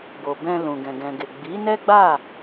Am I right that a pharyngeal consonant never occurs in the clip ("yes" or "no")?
yes